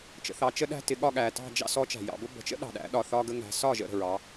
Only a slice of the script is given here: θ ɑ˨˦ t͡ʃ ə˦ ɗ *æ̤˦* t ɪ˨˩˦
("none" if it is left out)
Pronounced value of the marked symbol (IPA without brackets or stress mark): æ̤˦